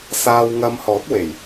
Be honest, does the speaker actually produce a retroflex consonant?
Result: no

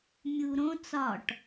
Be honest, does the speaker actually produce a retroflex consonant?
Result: yes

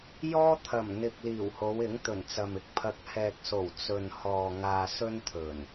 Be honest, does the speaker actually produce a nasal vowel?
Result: no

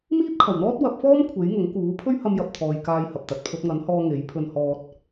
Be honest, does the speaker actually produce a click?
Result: no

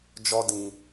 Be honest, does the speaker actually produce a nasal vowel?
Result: yes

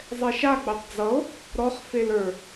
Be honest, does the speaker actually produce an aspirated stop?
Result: no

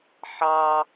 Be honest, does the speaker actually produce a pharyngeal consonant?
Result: yes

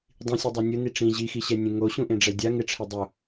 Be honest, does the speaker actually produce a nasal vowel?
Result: yes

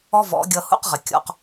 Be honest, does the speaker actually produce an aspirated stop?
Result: no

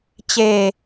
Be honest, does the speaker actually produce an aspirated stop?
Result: no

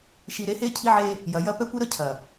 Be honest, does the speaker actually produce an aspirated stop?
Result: yes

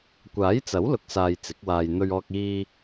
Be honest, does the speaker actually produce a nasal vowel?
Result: no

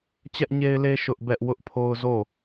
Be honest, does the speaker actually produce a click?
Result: no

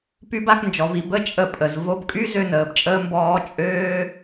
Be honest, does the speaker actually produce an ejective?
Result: yes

